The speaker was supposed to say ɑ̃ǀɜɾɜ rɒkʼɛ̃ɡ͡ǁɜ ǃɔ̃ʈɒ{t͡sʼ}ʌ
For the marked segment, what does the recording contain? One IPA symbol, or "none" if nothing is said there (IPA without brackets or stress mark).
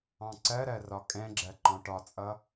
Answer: t͡sʼ